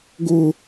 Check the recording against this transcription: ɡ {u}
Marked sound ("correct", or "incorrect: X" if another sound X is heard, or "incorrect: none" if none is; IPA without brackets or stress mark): incorrect: ʊ